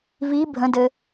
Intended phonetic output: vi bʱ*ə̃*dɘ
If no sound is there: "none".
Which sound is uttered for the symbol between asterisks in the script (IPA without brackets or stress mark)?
ə̃